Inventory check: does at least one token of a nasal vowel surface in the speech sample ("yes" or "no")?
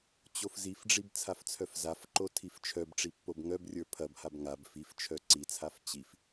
no